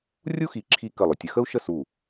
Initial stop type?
click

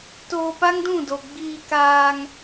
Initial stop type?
plain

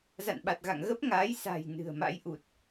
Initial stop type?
implosive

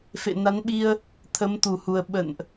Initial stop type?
implosive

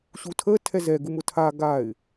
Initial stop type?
aspirated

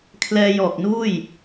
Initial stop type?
aspirated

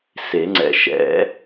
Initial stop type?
click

